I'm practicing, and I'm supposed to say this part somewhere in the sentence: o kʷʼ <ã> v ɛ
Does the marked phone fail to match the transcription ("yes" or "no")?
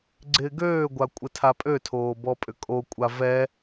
yes